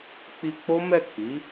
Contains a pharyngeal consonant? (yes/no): no